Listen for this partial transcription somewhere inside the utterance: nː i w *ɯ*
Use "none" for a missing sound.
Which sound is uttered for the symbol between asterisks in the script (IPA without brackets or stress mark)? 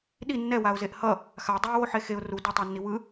ɯ